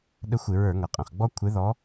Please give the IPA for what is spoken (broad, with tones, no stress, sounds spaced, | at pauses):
ɗ ə˦ xʷ ɪ˧˩˧ ɹ ə˞˧˩˧ ŋ ʌ˩ qʼ ə̃˩ χ ɡ͡b ɔ˦ kʷʰ ɪ˨˦ ð ɔ˨˦